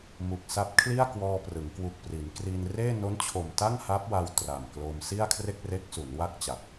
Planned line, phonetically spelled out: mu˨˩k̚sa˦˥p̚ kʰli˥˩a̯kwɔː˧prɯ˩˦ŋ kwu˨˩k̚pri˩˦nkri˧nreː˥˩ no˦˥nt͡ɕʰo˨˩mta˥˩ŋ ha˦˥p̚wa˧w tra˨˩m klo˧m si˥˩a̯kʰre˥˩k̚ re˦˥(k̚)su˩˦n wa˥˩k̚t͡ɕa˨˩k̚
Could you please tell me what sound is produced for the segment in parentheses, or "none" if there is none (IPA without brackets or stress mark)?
k̚